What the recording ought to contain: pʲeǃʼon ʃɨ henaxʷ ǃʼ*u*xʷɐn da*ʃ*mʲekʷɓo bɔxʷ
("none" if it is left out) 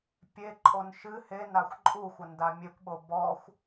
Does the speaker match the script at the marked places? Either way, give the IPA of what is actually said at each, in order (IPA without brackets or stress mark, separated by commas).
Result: u, none